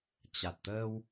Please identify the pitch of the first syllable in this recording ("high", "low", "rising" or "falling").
low